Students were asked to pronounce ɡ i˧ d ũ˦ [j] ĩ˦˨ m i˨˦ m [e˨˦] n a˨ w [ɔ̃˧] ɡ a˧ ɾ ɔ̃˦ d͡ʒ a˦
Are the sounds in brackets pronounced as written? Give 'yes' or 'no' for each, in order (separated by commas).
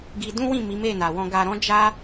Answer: no, no, yes